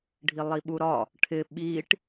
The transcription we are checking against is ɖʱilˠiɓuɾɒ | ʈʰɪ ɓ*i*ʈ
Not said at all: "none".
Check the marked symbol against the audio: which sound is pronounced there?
i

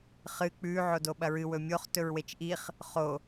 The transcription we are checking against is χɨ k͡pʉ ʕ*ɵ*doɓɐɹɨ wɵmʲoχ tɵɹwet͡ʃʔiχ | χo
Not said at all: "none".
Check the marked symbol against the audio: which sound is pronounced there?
o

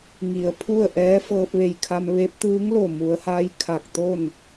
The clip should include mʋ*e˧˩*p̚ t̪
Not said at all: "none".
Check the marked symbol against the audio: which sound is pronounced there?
e˧˥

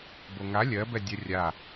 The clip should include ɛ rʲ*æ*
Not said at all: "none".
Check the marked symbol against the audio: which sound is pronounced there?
a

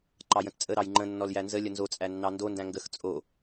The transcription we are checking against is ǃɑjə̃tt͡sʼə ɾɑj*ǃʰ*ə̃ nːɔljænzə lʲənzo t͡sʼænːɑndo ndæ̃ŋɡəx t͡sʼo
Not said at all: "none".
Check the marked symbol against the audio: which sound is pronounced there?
ŋ͡ǃ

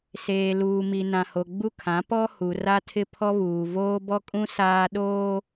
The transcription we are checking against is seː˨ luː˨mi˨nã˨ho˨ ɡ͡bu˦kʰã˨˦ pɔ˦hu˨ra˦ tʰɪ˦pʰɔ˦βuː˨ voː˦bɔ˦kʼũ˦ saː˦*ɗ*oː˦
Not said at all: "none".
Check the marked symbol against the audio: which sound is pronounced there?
ɗ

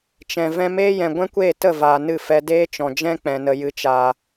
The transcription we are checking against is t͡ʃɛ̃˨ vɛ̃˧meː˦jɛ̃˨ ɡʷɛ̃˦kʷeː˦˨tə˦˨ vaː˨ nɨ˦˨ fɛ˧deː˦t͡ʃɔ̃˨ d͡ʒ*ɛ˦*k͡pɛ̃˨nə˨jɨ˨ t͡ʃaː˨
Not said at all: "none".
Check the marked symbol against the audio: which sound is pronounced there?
ɛ̃˦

